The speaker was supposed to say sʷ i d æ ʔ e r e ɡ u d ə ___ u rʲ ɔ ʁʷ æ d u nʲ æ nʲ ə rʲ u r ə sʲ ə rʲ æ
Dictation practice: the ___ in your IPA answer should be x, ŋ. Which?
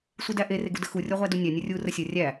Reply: x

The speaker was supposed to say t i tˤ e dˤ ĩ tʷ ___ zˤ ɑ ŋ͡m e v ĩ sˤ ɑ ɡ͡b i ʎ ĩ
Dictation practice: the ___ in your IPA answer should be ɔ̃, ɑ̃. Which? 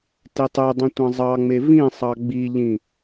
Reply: ɑ̃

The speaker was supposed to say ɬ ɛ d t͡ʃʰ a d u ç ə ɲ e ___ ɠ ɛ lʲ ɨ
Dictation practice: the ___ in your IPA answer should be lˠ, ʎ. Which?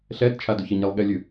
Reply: lˠ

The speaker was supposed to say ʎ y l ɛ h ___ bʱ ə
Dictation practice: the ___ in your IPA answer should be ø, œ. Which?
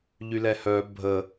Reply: œ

